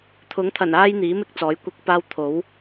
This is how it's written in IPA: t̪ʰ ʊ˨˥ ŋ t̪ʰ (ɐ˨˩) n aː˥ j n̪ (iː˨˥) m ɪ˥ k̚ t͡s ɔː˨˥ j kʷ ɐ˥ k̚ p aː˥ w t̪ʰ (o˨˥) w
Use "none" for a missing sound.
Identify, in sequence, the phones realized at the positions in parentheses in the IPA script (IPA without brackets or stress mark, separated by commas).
ɐ˨˩, iː˨˥, o˨˥